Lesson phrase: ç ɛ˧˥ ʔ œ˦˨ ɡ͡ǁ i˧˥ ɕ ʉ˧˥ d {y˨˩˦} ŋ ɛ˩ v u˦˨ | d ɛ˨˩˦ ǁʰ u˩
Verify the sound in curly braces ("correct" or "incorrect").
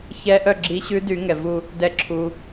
correct